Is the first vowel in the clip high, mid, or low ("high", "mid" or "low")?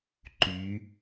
high